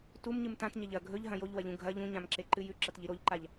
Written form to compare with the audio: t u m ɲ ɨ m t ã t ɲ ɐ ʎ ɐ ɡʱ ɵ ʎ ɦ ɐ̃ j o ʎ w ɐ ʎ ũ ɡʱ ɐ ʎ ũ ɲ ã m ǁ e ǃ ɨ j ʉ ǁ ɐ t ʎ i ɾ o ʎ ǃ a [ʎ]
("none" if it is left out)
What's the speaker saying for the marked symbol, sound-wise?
ʎ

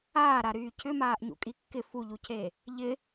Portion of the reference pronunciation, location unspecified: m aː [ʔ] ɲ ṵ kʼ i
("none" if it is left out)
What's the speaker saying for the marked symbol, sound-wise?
ʔ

